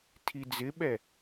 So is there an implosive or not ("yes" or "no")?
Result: yes